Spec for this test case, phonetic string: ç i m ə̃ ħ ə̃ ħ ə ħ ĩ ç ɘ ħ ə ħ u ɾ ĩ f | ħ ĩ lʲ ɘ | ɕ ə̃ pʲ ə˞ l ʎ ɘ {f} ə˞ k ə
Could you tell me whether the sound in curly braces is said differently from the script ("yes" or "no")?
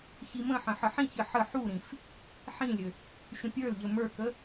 yes